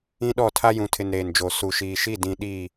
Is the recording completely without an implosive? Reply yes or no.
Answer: no